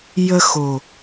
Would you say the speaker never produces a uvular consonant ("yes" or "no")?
yes